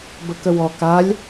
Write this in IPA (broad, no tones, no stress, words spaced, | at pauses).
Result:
bəkəwɔ kalʲ